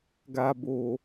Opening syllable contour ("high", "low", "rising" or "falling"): low